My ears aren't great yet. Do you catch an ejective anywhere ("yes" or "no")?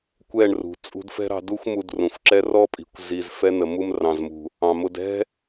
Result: yes